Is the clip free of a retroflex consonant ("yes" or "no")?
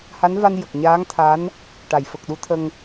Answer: no